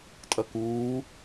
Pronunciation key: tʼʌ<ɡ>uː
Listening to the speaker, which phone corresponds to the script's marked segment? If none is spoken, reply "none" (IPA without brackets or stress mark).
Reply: k